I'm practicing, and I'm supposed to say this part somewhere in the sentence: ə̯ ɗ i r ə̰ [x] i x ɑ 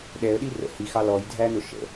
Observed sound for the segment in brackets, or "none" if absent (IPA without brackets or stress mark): h